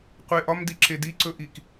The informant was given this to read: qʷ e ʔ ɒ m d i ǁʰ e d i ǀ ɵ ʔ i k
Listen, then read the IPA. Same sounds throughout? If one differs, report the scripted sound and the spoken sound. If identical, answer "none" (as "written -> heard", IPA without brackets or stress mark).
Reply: none